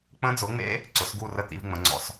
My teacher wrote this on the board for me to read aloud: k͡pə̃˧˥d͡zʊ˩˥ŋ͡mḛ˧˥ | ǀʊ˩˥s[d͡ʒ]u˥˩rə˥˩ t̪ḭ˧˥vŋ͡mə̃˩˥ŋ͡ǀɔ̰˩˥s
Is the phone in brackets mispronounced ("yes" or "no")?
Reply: yes